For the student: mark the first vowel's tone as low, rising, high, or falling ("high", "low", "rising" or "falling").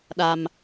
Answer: low